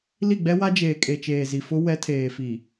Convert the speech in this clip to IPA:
li˦˨ɡ͡bɛ˦wa˦ d͡ʒeː˨kʼe˨t͡ʃeː˨ zi˨fʊ˦ wɛ˦ tʰeː˨fi˨

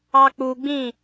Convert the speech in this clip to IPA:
ɑk͡puɡ͡bĩ

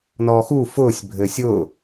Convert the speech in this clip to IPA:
nɔːxu fʊːsʲ bʱɘːsʲʊː

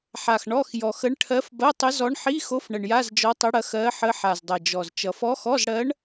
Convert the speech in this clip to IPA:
ħa˨˩x ɳɔ˧˥˧x jɔ˨˩xə˧˥ɳʈʰɜ˧˥f bɐ˧˥˧tˤə˧˥zɔ˧˥ɳ ħi˧˥˧xo˧˥f ɳə˨˩ɳja˧˥˧zd͡ʒɔ˧˥tˤə˧˥ ɽɐ˧˥xɜ˧˥ħə˧˥ ħa˨˩zdˤʌ˨˩d͡ʒɔ˨˩z t͡ʃʌ˨˩fɔ˧˥xɔ˧˥˧zɽɜ˧˥ɳ

